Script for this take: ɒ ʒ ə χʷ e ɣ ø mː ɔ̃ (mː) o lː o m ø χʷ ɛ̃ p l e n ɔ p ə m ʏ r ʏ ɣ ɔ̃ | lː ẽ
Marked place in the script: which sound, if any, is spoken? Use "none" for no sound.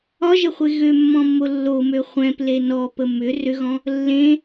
mː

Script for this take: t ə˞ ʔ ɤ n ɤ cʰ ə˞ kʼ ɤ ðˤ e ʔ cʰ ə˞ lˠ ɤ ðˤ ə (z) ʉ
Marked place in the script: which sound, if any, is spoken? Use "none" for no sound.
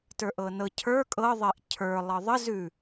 z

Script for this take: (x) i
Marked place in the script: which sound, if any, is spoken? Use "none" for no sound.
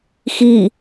x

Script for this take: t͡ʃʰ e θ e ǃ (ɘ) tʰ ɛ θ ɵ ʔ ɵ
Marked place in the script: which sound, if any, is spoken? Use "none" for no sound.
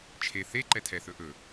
ɛ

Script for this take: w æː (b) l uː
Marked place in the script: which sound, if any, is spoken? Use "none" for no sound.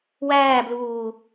b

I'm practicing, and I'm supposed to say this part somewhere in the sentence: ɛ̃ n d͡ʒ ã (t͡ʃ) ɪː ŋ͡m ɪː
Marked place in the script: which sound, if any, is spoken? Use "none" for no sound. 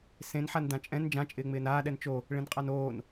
t͡ʃʼ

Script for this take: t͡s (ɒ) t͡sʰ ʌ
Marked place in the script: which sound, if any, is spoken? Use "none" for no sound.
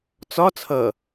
ɒ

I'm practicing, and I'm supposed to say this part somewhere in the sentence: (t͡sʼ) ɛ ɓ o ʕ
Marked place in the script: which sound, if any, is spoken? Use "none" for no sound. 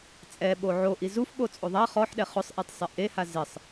t͡sʼ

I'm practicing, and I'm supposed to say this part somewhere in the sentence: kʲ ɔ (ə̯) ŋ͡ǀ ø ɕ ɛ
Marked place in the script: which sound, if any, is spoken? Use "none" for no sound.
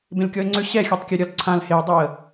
ɪ̯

